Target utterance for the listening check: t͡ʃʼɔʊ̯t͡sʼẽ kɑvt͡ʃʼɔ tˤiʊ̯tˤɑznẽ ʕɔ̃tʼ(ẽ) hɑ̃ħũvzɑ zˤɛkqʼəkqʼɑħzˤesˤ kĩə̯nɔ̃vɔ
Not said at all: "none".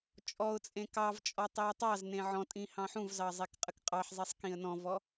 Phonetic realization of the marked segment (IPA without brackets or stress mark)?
ĩ